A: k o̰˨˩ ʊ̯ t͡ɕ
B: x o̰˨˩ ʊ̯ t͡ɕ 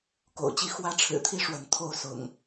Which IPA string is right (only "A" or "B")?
A